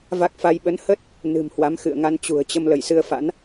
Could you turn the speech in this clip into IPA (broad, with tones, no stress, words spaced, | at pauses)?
va˦˥k̚fa˧j ɓə˨˦nhə˦˥t̚ | nɨ̤˨˩mhwa˨˦m xɨ̰˧˨ə̯ ŋa˧nt͡ɕṳ˨˩ə̯t͡ɕə˧m lə˧˩jsɨ˧ə̯fa̰˧˥n